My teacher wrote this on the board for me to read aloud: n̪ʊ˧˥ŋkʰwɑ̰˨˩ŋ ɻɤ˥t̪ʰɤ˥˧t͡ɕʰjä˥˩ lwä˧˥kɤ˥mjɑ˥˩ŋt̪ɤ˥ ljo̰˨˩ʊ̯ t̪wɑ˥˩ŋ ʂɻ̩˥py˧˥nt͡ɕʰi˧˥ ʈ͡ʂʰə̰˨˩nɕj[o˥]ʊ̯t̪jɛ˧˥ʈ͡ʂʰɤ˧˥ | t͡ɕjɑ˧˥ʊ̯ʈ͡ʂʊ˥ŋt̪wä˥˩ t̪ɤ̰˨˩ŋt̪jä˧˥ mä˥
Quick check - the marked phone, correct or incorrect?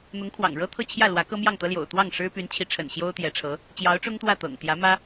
correct